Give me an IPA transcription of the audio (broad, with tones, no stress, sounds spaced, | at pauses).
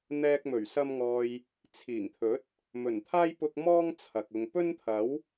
n̪ ɛː˧ k̚ m ɵ˨˩ ɥ s ɐ˧ m ŋ ɔː˨ j | t͡sʰ iː˨˩ ŋ t̪ʰ ɵ˨˥ t̚ | m ɵ˨˩ n t̪ʰ aː˥ j p ʊ˧ k̚ m ɔː˥ ŋ t͡sʰ ɐ˨ k̚ ʊ˨ ŋ p ɵ˥ n t̪ʰ ɐ˨˥ w